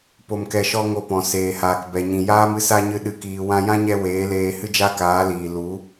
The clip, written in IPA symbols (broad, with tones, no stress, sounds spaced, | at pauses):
p o˧ m k ɛ˧ ʃ ɔ˦ ŋ o˧ p ɔ̃˨ s eː˨ h aː˨ k b ɛ˨ ɲ ĩ˨ j aː˦ m ɨ˦ s a˦ ɲ ɨ˧ ɗ ɨ˧ k iː˧ w ã˧ j ã˦ ɲ ɛ˧ w eː˨˦ l eː˧ h ɨ˦ d͡ʒ a˦ k aː˨˦ l iː˨ l u˨˦